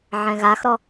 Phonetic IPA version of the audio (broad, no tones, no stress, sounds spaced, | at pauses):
ʕ ɛ̃ ɣ a x ɾ ɔ